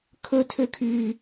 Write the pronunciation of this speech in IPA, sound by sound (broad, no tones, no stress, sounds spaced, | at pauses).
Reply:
kʰ ɵ tʰ ø kʰ yː